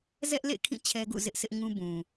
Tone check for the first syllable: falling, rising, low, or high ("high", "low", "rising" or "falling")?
high